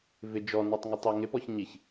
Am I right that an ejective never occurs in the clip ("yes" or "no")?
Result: yes